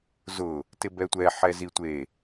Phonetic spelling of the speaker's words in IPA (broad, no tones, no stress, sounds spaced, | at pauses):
z ʊ | t ɪ b ɛ tʷ ɛ ħ ɛ z i tʷ e